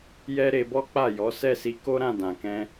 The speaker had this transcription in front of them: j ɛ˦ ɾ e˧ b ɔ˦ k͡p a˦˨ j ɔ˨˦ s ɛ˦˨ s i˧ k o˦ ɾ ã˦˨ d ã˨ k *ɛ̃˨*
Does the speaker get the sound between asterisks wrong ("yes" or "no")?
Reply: yes